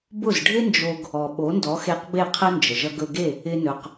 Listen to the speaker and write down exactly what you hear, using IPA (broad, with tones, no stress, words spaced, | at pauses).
bʊ˥˩zɖʱɪ˥nd͡ʒo˧ɡ | ɔ˩ɓo˩˥ndɔ˩˥ xe˧q be˥˩qʰə˥nd͡ʒə˩ ʒʌ˧ɡɵ˧ɡe˥˩ | ɪ˧nɵ˩q